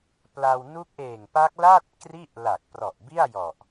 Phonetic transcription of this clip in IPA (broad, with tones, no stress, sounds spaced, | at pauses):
p l a˧ w n u˦˥ k̚ ʔ eː˨˩ ŋ p a˦˥ k̚ l aː˥˩ t̚ k r i˥˩ ʔ l a˨˩ k̚ p r ɔ˨˩ ʔ b i˥˩ a̯ j ɔ˨˩ ʔ